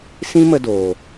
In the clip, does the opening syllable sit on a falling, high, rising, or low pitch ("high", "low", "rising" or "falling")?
high